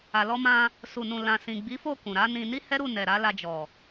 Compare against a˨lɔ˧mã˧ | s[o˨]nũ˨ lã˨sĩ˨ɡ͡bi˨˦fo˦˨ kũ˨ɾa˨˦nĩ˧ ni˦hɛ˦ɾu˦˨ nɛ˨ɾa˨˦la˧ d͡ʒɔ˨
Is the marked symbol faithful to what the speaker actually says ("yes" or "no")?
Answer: no